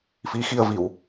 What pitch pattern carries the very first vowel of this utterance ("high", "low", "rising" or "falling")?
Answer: rising